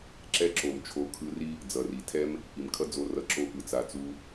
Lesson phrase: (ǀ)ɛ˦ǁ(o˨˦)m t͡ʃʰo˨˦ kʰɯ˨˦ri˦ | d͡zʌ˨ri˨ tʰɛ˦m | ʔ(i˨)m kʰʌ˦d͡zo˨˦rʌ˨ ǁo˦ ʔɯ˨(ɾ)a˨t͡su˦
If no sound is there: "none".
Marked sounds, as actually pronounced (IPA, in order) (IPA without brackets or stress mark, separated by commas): ǁ, o˨, i˨, t͡s